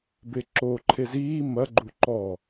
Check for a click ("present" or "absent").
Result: present